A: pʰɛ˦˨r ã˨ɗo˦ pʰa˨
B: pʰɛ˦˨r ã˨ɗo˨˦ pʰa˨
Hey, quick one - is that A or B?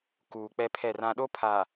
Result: A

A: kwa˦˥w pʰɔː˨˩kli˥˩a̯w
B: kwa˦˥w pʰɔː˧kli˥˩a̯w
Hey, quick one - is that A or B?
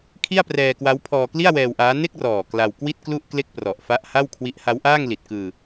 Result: B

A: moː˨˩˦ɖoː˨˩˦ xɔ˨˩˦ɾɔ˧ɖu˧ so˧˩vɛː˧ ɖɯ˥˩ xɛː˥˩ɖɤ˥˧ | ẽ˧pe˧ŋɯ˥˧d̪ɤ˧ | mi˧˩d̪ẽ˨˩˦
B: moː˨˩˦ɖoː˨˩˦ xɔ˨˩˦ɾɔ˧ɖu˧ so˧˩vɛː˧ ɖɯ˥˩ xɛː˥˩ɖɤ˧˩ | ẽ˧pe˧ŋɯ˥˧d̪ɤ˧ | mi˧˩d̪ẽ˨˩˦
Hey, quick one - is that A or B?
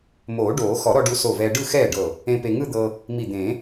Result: B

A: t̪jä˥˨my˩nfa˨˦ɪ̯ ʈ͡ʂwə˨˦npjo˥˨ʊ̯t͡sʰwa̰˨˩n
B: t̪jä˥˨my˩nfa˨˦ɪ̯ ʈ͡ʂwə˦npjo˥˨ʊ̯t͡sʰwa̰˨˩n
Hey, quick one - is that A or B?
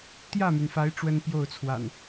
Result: B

